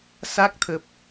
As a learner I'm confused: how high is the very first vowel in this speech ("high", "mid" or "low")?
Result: low